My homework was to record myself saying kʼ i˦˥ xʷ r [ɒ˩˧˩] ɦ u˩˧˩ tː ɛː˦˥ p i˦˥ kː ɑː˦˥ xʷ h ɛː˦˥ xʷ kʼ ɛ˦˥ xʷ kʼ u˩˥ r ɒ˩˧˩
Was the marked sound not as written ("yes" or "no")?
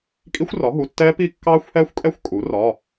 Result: yes